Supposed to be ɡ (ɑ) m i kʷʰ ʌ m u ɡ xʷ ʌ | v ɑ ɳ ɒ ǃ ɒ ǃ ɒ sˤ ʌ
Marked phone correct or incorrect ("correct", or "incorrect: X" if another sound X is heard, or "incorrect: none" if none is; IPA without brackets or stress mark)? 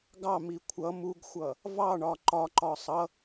correct